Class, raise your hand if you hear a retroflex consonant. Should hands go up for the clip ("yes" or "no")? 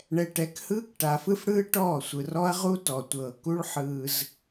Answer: yes